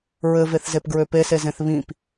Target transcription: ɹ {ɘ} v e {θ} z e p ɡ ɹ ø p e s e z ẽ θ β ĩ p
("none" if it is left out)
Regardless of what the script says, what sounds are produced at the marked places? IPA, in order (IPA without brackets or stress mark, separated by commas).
ɘ, θ